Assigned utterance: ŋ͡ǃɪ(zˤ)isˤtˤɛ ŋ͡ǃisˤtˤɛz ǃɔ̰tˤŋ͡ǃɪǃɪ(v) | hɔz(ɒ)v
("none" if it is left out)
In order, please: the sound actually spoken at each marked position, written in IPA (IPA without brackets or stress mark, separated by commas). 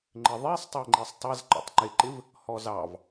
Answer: ðˤ, v, ɑ